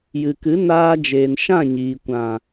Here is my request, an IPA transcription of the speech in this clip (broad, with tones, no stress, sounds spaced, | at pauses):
j ɨ˨ k ɨ˨˦ n aː˧ d͡ʒ eː˨ n ʃ ã˦˨ ɲ iː˨ kʷ ã˨